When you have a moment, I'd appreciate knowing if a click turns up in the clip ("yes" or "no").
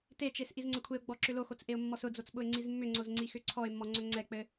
yes